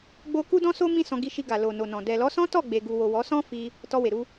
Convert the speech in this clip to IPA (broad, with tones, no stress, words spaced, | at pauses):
ɡ͡bo˦ ku˦dɔ̃˦so˦ mĩ˦sɔ̃˧ɡi˧ʃi˧ ɡa˨lo˨no˨nɔ̃˨ dɛ˨lɔ˨˦sɔ̃˦ tɔ˦˨ɡ͡be˨ ɡu˨wo˨ wɔ˨˦sɔ̃˦fi˧ | tɔ˧we˨ɾu˧